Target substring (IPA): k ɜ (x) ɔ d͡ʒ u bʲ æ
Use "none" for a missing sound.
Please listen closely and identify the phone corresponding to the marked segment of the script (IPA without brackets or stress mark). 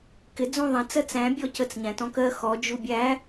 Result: x